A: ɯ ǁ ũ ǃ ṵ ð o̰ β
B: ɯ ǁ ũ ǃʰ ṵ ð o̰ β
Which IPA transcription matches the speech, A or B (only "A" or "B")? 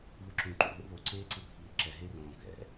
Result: A